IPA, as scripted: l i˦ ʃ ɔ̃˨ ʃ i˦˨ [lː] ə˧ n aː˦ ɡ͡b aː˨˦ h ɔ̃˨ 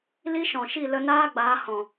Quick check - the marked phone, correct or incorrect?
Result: incorrect